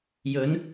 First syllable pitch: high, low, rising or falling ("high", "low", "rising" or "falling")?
rising